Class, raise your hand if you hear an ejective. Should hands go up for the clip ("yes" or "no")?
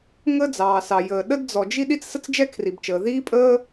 yes